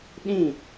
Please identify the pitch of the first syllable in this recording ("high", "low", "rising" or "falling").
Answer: falling